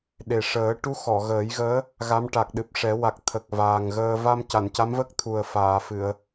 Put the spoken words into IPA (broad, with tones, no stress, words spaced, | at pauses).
ɗe˨˩ʂəː˨˩˦ʈu˧˥ xɔ˨˩˨ɣəː˨˩˦jɣəː˧˥ | ɣa˧˥mʈa˨˩k̚ɗɨ˨˩p̚ʂɛ˨˩˦ wa˨˩k̚ t̪ʰə˨˩k̚vaː˨˩ŋɣəː˧ va˧mca˨˩˨nca˧˥mvə˦˥k̚ t̪ʰu˨˩ə̯faː˨˩˨fɨ˨˩˨ə̯